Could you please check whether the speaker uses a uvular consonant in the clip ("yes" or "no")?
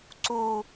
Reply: no